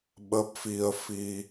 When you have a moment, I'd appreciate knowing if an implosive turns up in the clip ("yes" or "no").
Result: yes